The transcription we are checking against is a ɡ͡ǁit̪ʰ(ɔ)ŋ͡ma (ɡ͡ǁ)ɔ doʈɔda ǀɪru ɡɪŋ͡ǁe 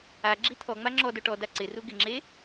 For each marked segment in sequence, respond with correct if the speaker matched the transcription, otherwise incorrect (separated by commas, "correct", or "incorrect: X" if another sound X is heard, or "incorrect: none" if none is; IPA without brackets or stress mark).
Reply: correct, incorrect: ŋ͡ǁ